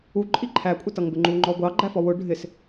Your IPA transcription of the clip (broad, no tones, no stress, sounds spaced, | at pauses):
u ǃʼ i ǃʰ æ kʷʼ ɪ t ʌ ŋ b ɪ ŋ͡ǃ u ŋ͡ǃ ɔ ɡʷ ɑ ɡ͡ǃ æ f ɔ w ʊ ɖʱ ɪ s